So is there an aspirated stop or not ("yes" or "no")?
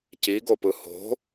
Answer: no